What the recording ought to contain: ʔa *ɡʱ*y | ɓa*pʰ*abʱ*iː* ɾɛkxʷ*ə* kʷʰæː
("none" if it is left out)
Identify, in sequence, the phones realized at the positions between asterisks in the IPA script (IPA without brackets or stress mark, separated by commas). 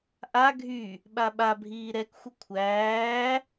ɡʱ, ɓ, iː, ə